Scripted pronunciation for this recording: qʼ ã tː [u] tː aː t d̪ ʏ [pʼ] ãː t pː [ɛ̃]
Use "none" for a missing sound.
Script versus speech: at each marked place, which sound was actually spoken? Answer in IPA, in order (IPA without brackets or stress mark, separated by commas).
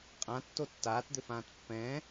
o, f, ɛ̃